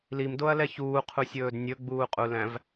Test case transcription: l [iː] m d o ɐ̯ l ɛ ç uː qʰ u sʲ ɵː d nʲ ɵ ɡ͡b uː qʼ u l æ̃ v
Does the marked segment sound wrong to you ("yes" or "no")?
yes